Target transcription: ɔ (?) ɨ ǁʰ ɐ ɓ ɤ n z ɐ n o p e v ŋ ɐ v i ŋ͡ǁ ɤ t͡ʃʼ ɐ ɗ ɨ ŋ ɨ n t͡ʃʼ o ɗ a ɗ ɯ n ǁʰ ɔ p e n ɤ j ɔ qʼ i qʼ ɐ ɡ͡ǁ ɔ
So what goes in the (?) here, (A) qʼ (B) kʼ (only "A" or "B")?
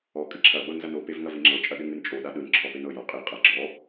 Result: B